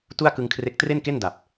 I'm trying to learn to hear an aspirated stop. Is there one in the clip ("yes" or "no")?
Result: yes